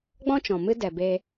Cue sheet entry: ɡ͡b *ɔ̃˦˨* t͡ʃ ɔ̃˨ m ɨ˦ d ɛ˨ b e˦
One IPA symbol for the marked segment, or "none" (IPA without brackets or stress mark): ɔ̃˦